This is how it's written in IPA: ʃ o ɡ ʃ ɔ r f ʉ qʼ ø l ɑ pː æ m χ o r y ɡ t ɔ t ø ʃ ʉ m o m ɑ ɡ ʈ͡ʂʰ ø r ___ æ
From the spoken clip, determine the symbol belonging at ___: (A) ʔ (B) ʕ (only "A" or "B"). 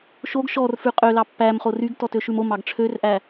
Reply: A